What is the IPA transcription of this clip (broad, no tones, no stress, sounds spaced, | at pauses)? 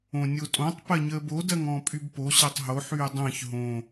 õ nʲ o tʼ õ tˤ p ɜ ɲ əː b o d ɜ ŋ ɔ̃ː pʼ y b p o ɕ ɜ tˤ ɦ o ħ yː dˤ ə̃ː ç ɦ õ